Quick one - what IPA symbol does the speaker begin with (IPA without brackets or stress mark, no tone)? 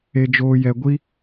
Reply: e